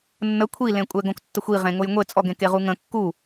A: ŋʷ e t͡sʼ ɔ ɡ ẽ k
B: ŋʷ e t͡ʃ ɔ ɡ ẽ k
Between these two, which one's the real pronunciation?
A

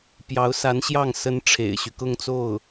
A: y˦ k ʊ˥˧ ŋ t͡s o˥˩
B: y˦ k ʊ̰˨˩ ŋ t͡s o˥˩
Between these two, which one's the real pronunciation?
A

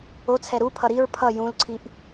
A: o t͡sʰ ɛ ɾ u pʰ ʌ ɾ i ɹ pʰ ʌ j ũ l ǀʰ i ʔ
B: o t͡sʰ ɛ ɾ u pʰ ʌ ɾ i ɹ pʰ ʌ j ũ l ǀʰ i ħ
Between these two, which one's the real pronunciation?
A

